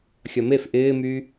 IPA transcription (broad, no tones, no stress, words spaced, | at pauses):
xʲɐmef ʔɪːmy